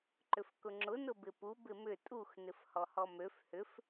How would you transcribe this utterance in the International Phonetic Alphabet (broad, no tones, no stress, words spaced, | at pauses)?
ǃʏfkʊŋ͡ǁʊ nʊbɪpu bɪmʏ tʼux nɪfhɔhɔmøf hʏf